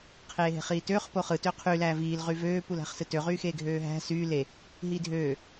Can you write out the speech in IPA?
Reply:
qʰeːɦe̤χiːtøːχ poχɯ tøqʰy læːviːl ʁyvøː pulæ̤χsɯtø ʁyːxeːɡʱøːɦæ̤ syː le | ɦiːdʱøː

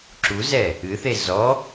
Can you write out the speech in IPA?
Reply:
ǁuzɛ | ɨθe zɔ

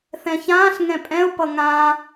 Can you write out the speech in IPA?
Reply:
θɛ̃çãːɬ ŋɛ̃pʼɛ̃ʊ̯ pʌŋã

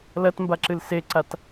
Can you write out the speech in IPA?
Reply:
lɐtmbaǁɨl seǀat

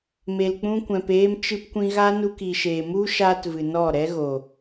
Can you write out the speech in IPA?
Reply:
me˨lk͡pũ˧kʷɛ̃˨p eː˧mt͡ʃɨ˧pkʷĩ˧ɣa˦ nu˧k i˨ʃeː˨mu˦ ʃaː˦tvɨ˨nɔ˦˨ ɾɛ˦ɣo˨

